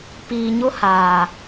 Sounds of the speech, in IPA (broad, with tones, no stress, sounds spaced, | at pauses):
p iː˨ ɲ ʊ˦ h aː˨